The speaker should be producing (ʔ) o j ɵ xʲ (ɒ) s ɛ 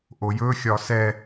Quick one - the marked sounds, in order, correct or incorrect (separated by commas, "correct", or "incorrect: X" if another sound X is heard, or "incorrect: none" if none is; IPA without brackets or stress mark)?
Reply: correct, correct